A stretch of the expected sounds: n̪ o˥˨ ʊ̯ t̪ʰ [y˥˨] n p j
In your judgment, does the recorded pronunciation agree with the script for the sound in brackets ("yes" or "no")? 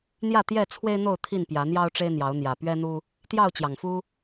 no